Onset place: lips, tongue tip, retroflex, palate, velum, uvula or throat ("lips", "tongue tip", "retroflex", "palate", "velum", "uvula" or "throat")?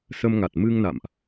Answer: tongue tip